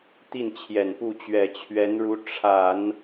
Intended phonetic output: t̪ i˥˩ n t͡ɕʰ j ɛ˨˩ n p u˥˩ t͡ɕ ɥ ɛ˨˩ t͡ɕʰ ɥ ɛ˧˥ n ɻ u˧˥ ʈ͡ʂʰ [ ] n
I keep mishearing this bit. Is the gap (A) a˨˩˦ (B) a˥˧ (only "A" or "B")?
A